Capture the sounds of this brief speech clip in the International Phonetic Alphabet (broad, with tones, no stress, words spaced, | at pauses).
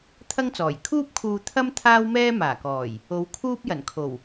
t̪ʰɐ˥ŋt͡sɔː˨˩j kʰuː˥p̚kʰuː˧ t̪ʰɐ˥m t̪ʰaː˥wmɛː˥ maː˨˩kɔː˨˩j | o˨˧w kʰuː˥p̚ jɐ˨˩nkʰo˨˩w